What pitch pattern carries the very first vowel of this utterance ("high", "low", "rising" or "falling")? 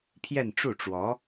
falling